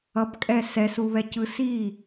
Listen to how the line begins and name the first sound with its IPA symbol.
ʌ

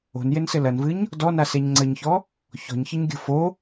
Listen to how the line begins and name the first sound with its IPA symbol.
o̤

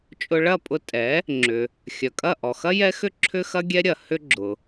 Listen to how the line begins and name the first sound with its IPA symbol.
t͡ʃʼ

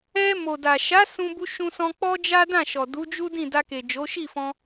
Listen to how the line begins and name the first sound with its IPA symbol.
ɛ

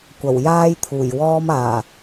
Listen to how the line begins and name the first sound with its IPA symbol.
kʷ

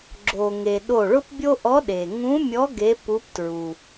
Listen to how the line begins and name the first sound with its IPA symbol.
ɡ͡ǁ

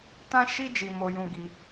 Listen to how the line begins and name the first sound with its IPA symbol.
t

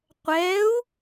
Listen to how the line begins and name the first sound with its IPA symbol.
qʷ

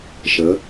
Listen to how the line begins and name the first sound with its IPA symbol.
ʃ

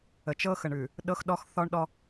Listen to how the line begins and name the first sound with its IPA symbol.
ə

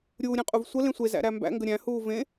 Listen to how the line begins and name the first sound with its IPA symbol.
ɾʲ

